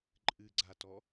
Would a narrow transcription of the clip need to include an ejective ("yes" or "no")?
yes